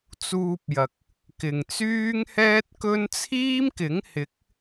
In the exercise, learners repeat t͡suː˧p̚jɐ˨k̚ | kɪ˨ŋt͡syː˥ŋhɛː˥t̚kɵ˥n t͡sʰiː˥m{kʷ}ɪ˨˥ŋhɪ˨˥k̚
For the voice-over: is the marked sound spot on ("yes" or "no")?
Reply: no